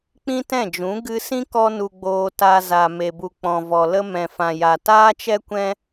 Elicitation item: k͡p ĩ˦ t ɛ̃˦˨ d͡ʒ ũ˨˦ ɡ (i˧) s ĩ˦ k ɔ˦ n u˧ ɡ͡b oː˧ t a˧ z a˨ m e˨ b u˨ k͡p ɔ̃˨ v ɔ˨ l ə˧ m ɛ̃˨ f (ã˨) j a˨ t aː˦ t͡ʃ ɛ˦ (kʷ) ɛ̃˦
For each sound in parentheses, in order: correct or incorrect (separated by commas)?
incorrect, correct, correct